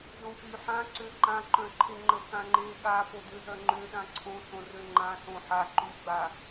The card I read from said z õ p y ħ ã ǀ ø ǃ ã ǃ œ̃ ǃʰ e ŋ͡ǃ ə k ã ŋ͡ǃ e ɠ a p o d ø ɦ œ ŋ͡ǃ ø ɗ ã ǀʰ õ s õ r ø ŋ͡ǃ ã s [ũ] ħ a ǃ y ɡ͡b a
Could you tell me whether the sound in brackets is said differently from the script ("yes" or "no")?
yes